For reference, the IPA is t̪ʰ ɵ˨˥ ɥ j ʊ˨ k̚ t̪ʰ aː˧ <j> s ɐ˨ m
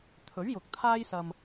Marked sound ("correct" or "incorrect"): correct